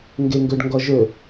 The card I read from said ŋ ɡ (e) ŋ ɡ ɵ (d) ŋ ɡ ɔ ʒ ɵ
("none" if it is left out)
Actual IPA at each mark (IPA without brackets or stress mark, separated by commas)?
e, ɖ